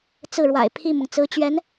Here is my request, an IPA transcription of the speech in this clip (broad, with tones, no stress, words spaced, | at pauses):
t͡sɹ̩˥˩ɻwa̰˨˩ɪ̯pʰi˥˩mʊ˩ŋ t͡sɹ̩˧˥t͡ɕɥɛ˧˥n